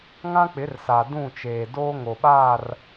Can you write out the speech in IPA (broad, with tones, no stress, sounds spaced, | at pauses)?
ŋ ã˦ k͡p ɪ˨˦ r s a˨ d ũ˦˨ t͡ʃ eː˨ d oː˦ ŋ o˨ ɓ aː˦˨ r